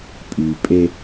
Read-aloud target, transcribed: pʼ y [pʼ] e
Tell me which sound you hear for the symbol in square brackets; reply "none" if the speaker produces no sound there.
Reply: pʼ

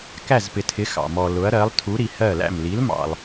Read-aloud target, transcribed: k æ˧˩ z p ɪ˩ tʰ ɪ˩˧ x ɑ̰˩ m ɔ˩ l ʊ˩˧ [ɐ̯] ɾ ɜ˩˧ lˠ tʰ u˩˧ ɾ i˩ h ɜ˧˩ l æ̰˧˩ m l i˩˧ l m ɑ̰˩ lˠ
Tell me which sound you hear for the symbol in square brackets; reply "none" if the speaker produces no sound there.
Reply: ɐ̯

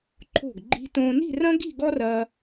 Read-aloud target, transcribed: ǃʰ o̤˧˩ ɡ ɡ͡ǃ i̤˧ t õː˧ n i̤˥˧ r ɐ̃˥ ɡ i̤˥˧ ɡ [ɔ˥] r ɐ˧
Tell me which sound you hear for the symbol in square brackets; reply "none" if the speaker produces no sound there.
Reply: ɔ˥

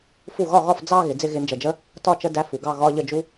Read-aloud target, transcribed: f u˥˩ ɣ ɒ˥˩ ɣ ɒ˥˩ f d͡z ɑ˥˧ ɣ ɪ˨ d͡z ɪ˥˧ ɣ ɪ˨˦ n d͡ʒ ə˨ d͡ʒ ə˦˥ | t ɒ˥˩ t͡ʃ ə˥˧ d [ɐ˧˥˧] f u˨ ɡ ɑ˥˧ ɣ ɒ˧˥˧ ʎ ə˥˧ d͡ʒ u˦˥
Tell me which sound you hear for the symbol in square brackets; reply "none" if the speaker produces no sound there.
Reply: æ˧˥˧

